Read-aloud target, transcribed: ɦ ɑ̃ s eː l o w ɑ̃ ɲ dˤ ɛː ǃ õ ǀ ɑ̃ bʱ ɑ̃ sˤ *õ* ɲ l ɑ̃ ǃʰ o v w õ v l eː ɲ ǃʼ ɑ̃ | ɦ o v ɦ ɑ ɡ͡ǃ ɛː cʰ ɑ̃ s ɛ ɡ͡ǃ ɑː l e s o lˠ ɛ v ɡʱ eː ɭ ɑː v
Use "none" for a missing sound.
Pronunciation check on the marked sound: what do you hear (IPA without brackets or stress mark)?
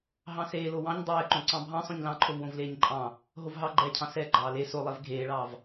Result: õ